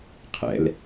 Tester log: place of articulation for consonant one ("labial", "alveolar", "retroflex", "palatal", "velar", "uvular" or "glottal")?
uvular